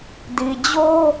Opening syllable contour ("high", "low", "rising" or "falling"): low